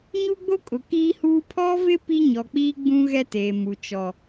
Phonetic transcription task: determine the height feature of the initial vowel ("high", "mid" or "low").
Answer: high